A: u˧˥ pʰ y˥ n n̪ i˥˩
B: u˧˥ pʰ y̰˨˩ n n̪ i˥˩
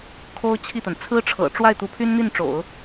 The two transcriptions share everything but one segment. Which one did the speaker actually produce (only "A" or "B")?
A